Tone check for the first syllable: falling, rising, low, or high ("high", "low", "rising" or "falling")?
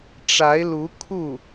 rising